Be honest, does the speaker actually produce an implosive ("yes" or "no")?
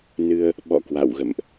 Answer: yes